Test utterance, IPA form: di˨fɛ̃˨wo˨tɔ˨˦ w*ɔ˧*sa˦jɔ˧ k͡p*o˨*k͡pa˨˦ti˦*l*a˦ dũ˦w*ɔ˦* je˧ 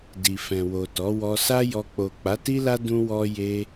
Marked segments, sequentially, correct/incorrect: correct, correct, correct, correct

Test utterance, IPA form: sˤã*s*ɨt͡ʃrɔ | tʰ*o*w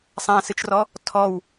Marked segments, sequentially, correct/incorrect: correct, incorrect

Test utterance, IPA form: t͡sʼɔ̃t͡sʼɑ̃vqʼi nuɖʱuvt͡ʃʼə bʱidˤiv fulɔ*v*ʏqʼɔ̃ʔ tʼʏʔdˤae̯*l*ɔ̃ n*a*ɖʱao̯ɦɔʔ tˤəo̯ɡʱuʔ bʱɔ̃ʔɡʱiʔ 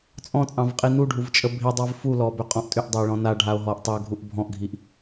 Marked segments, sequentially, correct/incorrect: incorrect, incorrect, correct

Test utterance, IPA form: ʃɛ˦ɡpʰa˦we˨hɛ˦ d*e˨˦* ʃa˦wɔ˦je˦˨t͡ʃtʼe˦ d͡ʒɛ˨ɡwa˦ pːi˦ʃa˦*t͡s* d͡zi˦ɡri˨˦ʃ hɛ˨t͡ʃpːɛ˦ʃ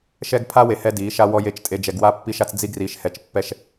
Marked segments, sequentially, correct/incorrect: incorrect, correct

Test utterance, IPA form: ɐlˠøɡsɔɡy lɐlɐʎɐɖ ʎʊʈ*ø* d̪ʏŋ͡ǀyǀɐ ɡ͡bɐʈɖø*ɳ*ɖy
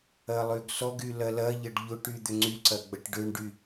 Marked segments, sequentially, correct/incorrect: incorrect, correct

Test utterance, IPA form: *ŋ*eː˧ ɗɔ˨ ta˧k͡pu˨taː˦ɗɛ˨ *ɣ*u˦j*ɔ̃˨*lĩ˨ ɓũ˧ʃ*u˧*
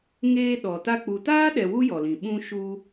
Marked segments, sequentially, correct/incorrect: correct, incorrect, incorrect, correct

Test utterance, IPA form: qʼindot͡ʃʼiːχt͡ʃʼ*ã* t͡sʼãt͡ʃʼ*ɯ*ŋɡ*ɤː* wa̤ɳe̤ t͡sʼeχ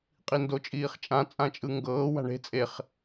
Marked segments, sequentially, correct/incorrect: correct, correct, correct

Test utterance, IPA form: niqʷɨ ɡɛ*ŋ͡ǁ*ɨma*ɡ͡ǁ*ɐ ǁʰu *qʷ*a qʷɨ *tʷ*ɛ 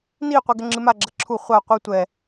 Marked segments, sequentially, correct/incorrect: correct, correct, incorrect, correct

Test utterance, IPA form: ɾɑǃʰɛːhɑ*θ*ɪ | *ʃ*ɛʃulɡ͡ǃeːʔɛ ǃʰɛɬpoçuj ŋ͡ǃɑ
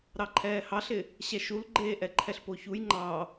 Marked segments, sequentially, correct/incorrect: incorrect, incorrect

